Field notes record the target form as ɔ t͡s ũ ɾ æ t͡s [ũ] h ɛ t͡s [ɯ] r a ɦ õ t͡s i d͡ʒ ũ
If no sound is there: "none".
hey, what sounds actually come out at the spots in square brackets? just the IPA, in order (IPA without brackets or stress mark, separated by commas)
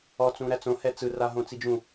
õ, ɯ